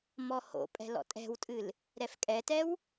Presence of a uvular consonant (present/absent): absent